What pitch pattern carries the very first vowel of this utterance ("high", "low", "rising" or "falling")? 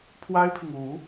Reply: high